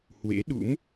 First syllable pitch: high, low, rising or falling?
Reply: rising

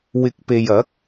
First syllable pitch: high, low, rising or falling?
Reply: rising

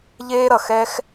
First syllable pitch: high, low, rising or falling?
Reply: high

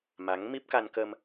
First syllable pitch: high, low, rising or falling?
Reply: rising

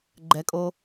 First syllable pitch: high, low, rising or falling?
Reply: rising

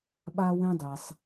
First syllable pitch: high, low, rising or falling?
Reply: high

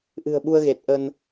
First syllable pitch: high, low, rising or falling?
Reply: low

